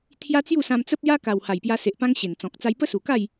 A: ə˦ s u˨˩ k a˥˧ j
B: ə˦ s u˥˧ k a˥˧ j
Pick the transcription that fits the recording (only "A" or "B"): A